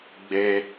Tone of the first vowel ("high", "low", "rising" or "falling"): high